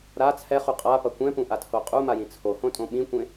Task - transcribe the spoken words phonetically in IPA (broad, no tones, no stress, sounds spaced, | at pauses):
ɾ a t͡sʰ ɛ χ u qʼ a p ʌ kʷ ɛ̃ p ũ ʔ a tʰ o qʼ u m a j ĩ t͡sʰ o h õ tʼ õ ɓ ĩ kʷ ẽ